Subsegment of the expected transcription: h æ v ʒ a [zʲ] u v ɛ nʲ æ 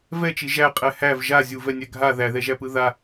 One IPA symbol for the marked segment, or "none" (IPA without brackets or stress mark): zʲ